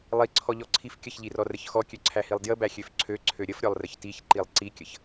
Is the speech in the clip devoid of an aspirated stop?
no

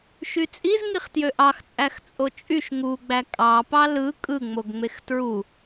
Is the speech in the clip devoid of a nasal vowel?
yes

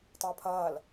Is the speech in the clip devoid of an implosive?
yes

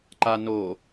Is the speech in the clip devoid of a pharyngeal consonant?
yes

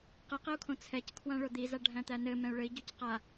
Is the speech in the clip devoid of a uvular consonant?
no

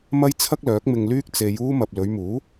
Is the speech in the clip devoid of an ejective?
yes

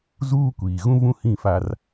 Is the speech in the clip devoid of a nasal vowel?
no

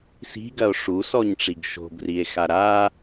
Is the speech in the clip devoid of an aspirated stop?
yes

